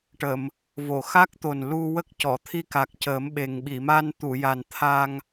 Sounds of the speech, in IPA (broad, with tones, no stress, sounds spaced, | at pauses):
ʈ ə˨˩˨ m | v o˨˩˨ x a˦˥ k̚ t̪ o˨˩ n l u˧ w ə˦˥ k̚ c ɔ˨˩˨ t̪ʰ i˧ k a˨˩ k̚ c əː˨˩˦ m ɓ e˨˩ ŋ ɓ i˨˩˨ m a˧ n t̪ u˨˩˨ j a˨˩ n t̪ʰ a˧ ŋ